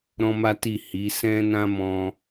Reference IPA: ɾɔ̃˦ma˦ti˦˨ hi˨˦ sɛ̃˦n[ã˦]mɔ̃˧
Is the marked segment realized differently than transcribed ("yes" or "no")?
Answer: no